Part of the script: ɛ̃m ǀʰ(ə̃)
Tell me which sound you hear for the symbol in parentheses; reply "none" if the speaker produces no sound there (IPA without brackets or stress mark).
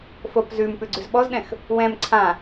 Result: ã